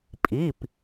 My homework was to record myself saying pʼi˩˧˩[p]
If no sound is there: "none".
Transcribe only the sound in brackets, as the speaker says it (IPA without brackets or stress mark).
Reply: p